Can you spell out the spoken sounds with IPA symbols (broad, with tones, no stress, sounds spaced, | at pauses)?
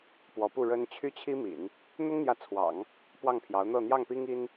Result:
p w ɔ˧˥ p u˥˩ ɻ ə˥ n t͡ɕʰ y˥ t͡ɕʰ i˥ m ḭ˨˩˦ n | n̪ ʊ˥ ŋ n̪ j ä˧˥ t͡sʰ w ɑ̰˨˩˦ ŋ | p w ɑ˥˩ ŋ pʰ j ɑ˧˥ ʊ̯ n̪ ɤ˥˧ n̪ j ɑ˥˩ ŋ p i˥ ŋ i˥ n